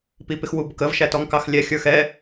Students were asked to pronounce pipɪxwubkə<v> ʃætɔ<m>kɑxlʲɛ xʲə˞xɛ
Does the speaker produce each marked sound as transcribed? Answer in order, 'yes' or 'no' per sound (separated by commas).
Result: yes, no